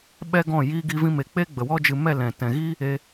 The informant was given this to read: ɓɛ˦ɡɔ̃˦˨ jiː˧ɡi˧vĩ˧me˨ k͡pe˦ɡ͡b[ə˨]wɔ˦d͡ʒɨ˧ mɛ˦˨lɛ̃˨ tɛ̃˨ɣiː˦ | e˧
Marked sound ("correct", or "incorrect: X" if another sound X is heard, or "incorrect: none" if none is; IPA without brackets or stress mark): correct